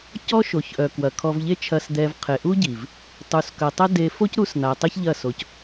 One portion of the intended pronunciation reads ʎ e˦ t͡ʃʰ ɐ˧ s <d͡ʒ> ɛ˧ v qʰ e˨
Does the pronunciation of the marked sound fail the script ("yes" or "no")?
yes